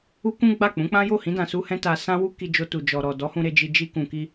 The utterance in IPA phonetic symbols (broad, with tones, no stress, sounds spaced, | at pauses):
u˦ k ũ˦ ɡ͡b a˦˨ k͡p ũ˨˦ k͡p ã˦ j o˦˨ h ĩ˨˦ d ã˧ s u˦ h ɛ̃˦ t a˧ s ã˦ w u˦ k i˧ d͡ʒ o˧ t u˨ d͡ʒ ɔ˨ ɾ ɔ˨ d ɔ˨˦ h ũ˧ ɾ e˧ d͡ʒ i˧ d͡ʒ i˧ k ũ˨ k i˧